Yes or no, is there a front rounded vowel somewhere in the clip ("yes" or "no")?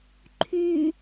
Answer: yes